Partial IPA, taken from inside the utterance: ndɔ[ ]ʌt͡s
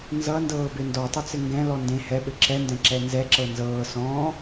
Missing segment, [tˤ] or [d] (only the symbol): tˤ